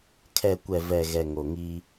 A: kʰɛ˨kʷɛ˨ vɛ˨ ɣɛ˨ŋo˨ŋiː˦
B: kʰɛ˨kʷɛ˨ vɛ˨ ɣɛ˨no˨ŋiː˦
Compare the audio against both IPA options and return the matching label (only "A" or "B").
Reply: A